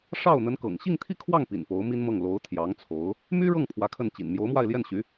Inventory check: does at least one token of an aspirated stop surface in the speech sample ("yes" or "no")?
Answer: yes